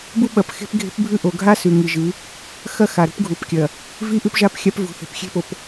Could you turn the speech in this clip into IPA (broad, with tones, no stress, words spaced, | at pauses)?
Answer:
bu˦ɓɐ˨pxe̤˦p ɡʱe̤˦pbʱʉ˦ ʔo˨ɡʱa˦ sʉ˨ŋi˨ʒɨ˨˦ | xɐ˦ xa˨ɾṳ˦pɡʱu˨pkʲɐ˨ | vi˦ʔʉ˦pʒa˦p xʲa˦pvṳ˨ θe̤˨pxʲe̤˦po˨p